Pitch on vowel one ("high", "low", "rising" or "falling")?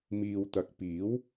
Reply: low